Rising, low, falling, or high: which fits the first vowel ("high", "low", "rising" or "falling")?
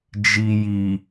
low